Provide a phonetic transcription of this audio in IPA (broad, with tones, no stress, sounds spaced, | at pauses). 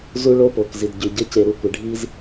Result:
z u˦ ɭ o˦ p o˨ k z i˨ d ɟ y˨ ɟ ə˨˦ c e˨ ɾ u˨ kʷ ɪ˨ ɖʱ i˦ z